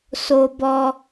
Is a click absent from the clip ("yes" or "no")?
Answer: yes